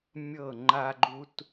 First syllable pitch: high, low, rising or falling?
falling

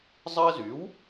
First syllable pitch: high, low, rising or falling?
high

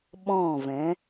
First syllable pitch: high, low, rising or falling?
falling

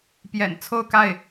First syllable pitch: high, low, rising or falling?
low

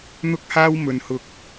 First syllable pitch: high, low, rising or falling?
high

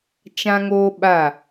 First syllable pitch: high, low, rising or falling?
high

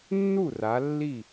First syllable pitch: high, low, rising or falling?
falling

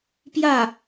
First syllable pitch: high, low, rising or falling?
falling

